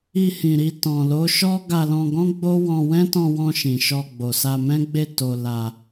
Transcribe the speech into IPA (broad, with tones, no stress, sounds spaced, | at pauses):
i˧ h ĩ˨ ɾ i˧ t ɔ̃˨ l o˨˦ ʃ ɔ˦ ɡ a˧ l ɔ̃˧ ɡ ɔ̃˦ ɡ͡b o˦ w ɔ̃˧ w ɛ̃˦ t ɔ̃˧ w ɔ̃˧ ʃ ĩ˨ ʃ ɔ˧ ɡ͡b o˨ s a˧ m ɛ̃˦ ɡ͡b e˦˨ t o˧ l a˧